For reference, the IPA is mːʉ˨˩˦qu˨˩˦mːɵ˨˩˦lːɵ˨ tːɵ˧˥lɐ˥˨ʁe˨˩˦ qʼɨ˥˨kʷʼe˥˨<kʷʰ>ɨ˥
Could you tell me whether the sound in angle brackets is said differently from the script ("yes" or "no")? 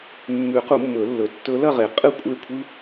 no